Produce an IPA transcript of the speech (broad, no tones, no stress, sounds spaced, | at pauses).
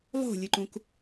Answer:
lˠ o̤ lʲ ɨ ǃ ũ k